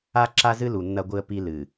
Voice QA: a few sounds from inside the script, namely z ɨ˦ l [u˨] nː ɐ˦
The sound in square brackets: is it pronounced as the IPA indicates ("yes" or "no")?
yes